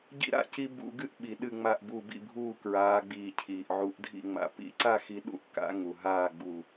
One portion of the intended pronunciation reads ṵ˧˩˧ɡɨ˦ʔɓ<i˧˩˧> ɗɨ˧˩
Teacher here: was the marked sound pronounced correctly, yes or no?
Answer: no